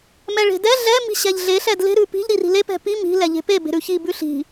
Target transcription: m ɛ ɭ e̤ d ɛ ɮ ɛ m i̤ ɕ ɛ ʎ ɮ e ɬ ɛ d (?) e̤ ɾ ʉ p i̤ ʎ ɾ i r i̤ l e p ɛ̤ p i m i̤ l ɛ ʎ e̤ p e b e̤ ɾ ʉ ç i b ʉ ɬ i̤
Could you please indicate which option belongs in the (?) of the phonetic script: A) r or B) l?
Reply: B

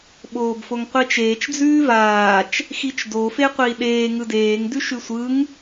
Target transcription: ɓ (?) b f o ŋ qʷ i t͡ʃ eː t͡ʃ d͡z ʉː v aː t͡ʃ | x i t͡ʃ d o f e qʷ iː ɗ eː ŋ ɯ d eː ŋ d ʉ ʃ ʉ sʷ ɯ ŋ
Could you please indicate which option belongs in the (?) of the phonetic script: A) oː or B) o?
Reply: A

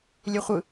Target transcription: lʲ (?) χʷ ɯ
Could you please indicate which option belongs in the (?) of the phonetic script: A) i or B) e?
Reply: B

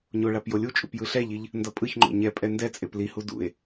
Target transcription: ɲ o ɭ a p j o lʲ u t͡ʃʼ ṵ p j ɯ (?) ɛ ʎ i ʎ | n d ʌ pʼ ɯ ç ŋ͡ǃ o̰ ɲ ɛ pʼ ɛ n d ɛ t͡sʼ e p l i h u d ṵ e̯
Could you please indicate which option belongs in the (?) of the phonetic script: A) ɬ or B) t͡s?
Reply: A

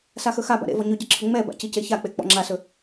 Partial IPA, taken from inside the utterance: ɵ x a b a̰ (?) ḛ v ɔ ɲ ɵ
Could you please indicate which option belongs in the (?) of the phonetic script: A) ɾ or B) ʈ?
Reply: A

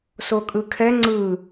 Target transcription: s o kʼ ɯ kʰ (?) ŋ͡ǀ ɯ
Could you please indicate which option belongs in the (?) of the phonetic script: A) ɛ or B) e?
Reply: A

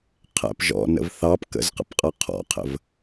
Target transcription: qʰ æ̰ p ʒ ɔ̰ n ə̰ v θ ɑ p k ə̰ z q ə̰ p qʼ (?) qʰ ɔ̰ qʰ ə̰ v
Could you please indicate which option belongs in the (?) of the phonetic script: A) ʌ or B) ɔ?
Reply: A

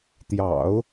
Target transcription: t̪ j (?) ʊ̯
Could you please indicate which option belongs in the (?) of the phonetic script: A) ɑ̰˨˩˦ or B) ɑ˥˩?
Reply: A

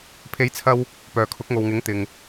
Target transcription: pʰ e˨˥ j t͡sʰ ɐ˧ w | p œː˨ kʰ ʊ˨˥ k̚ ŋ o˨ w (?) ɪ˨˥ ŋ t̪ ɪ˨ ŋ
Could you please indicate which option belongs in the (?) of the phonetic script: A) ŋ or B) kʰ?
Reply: A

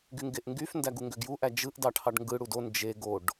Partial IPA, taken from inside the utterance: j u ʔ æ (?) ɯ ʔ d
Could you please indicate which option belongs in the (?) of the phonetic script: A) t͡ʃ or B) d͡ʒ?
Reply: B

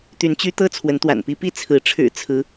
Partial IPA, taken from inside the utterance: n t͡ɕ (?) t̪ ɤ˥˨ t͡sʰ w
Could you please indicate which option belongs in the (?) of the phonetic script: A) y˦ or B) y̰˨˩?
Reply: A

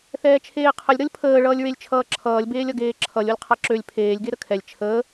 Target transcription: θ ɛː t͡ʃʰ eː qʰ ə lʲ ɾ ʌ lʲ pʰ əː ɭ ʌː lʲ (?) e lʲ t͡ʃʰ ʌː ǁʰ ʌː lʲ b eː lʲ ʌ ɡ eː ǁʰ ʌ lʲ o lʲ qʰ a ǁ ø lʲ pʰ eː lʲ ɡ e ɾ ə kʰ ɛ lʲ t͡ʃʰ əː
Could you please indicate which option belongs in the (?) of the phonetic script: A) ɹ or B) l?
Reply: A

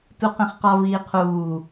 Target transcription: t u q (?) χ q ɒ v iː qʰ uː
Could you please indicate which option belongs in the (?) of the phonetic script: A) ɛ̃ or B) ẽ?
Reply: B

